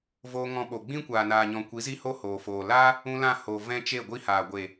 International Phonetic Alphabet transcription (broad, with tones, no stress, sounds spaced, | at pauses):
v oː˧ ŋ ɔ̃˧ ɓ o˨ ɡ͡b ĩ˦ kʷ aː˨ n aː˨ ɲ ɔ̃˨ kʷ i˨˦ z i˦ h o˦ h oː˨ f oː˨ l aː˦ | ũ˦ l ã˦˨ h o˨ v ɛ̃˦ t͡ʃ e˦˨ ɡʷ i˦ h aː˨ ɡʷ e˨